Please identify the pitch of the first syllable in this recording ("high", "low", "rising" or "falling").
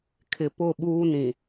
low